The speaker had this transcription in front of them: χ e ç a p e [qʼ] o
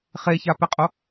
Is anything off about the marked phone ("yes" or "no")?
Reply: no